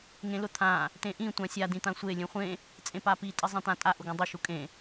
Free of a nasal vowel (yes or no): no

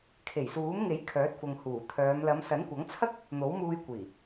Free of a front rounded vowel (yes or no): no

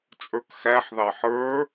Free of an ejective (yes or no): no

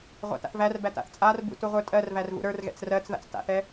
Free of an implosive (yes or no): yes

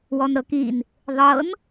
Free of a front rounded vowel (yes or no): yes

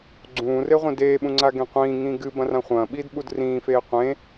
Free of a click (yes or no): no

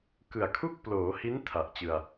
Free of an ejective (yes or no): yes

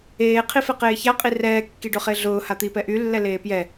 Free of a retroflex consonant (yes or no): no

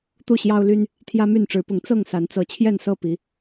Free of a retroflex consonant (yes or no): no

